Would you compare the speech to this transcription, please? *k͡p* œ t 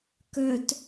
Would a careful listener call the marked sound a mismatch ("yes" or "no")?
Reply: yes